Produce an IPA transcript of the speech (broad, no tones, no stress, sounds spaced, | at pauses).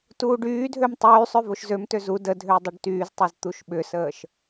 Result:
t uː ɖ yː dʱ ø m tˤ yː sˤ ø v o ʃ z ø m t ø z u d ə dʱ ʏː dˤ ʏ ɖ t yː z tˤ o z t̪ u ʃ ɓ ʏ s əː ʃ